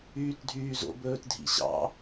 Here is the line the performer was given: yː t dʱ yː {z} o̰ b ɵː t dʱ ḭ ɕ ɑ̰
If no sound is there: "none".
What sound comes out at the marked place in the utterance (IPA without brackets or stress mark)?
z